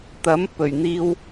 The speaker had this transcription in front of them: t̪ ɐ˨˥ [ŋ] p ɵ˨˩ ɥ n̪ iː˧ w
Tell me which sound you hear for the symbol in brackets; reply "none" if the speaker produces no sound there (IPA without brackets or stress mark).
m